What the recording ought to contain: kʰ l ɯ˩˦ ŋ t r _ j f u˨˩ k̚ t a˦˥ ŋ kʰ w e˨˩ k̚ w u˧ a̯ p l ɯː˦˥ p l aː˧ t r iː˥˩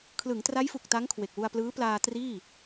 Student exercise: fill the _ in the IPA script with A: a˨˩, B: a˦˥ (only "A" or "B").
B